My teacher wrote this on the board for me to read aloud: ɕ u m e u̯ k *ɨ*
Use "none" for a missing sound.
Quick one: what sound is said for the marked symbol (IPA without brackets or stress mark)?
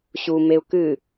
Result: ɨ